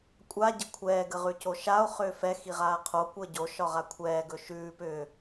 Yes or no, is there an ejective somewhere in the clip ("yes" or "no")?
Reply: yes